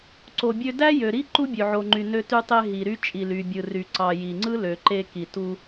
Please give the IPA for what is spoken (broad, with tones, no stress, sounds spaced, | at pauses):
ǀ o˩ bʲ ø˧ d æ˥ j ø˩ ɾ i˥ ǃ u˥ bʲ ø˩ ʕ o˩ ŋ͡ǃ y˩ n ø˧ t y˧ tˤ e˧ ɦ i˩ ɾ y˧ t͡ʃʼ i˩ l y˩ bʲ ɯ˩ r y˩ ǀ ɑ˩ j i˩ ŋ͡ǀ ɯ˥ l ø˩ ǃ e˧ k i˩ t u˧